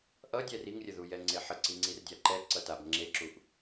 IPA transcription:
ʔ ʌ dʲ ɛ r i ŋ rʲ ə ð u j ɛ ŋ͡ǀ e ħ ə ǀ i ŋ͡ǀ i r dʲ a ǃ ɛ ǀ ʌ t a b ŋ͡ǁ e ǁ u ʔ

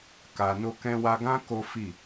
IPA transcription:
k a˨ n o˧ k ɛ̃˧ w a˧ ɡ ã˦ k o˦ f i˦˨

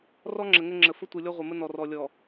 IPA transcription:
r ɔ˦ ŋ͡ǁ ə˨ ŋ ə˦ ŋ͡ǁ ə˨ f ə˦ tʷ ɯ˨ lʲ ɔ˦ ʁʷ ɘ˨ m ə˦ n ɔ˨ r ɔ˨ lʲ ɔ˨

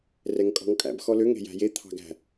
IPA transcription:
r ɛ ŋ kʼ ɔ̤ ŋ kʼ æ̰ b x ɔ l ø ŋ e̤ j æ̤ j e t̪ʰ ɑ̤ ɡ æ̤

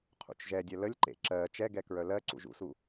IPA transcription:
qʰ ṵ t͡ʃ ʒ ɛ dʲ œ l ə lʲ ǃ ḛ ǁ ɜ t͡ʃ ɛ ɡ ɛ k ɹ œ l ɜ ǀ ṵ ʒ ṵ s u

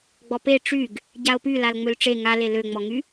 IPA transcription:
ɡ͡b ɔ p e ʈ͡ʂ y ɡ | ɟ a o̯ p y l a l ŋ͡m ø l ʈ͡ʂ e ŋ a l e l ø ŋ͡m ɔ ŋ y

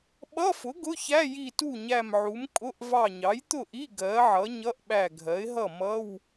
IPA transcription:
ɓ ʌ˧˥˧ f ʊ˩˥ ɡ ʊ˧˥˧ ç æ˧˥˧ j i˧˩ t u˥˩ ɲ æ˧˩ m ʕ u˩˥ m kʼ ʊ˧˥˧ ʔ v ɑ˧˩ ɲ ɑ˩˥ j t̪ ʊ˥˩ ʔ i˧˥˧ ɡ ɜ˩˥ ʕ ʌ˩˥ ɲ ʌ˧˥˧ ʔ ɓ æ˧˩ ɡʱ ɜ˩˥ ɪ̯ ɦ ʌ˥˩ m ʌ˧˥˧ w

